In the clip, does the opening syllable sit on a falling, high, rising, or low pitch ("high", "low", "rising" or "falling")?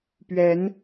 rising